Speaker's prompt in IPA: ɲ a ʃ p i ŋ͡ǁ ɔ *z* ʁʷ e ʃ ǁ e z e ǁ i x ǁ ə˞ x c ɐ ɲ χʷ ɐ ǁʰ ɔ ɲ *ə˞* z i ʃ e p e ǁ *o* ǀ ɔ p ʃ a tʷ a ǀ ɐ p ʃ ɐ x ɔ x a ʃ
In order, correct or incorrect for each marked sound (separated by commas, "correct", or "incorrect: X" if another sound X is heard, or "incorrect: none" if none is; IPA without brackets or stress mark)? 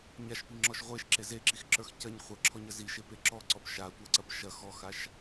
incorrect: ʃ, incorrect: ɐ, incorrect: ɔ